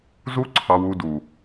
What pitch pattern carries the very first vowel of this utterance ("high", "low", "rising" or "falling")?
high